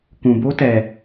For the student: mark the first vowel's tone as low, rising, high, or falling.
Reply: low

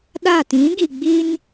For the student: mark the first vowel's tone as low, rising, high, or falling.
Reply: falling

